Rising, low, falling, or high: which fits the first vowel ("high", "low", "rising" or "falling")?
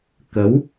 rising